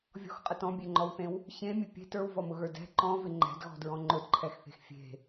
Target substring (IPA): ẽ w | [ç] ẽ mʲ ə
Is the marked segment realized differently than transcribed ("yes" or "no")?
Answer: no